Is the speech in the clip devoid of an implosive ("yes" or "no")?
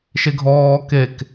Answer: yes